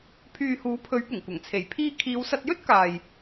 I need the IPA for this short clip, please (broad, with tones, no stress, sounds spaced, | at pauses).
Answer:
pʰ yː˨ h uː˨˥ pʰ ɵ˨˥ ɥ p ʊ˨˩ ŋ kʷ ɐ˨˩ ŋ t͡sʰ e˨˩ j pʰ iː˧ kʰ iː˨˧ w s ɐ˧ t̚ j ɵ˥ t̚ k aː˨ j